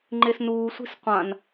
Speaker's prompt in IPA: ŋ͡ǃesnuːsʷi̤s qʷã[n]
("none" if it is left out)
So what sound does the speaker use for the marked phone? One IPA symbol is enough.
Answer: n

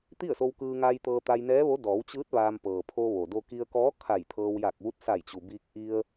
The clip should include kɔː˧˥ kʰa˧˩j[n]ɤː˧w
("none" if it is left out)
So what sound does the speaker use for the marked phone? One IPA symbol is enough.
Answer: t̪ʰ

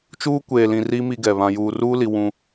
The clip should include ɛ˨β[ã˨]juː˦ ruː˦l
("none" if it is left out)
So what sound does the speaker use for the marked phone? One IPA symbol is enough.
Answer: ã˦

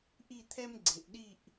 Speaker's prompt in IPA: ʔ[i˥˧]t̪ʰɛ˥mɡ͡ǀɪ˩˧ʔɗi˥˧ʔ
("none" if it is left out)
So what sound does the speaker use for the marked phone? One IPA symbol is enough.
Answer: i˥˧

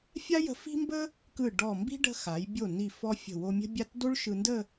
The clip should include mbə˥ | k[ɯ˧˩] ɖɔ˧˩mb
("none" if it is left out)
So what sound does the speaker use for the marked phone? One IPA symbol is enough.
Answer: ɯ˧˩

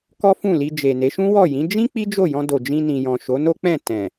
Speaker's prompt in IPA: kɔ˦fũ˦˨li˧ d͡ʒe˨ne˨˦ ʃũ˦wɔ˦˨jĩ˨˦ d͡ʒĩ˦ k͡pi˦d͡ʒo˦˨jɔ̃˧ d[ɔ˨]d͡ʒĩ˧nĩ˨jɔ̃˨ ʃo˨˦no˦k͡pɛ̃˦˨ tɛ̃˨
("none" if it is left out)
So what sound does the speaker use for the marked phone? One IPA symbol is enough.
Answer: o˨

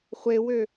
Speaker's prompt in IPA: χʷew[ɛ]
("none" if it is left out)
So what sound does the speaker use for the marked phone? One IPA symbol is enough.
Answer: ø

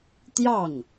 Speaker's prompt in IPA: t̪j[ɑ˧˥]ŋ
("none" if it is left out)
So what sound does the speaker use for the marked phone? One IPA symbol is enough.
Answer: ɑ˥˩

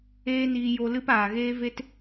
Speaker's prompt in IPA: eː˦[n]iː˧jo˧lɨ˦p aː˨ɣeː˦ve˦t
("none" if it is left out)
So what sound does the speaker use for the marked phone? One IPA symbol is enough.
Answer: n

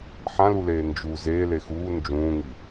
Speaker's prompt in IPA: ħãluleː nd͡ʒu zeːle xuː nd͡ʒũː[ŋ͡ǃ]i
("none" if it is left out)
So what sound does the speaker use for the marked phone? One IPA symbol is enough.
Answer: ŋ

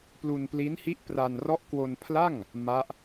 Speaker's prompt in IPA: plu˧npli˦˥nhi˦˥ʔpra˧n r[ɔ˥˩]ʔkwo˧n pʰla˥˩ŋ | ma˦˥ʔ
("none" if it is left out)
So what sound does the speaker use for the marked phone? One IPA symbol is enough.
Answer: ɔ˦˥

